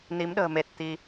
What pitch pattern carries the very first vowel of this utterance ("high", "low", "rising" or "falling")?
rising